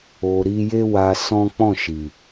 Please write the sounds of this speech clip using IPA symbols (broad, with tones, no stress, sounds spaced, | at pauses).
o˨ ɾ i˧ j e˦ w a˧ s ɔ̃˦ k͡p ɔ̃˦˨ ʃ i˨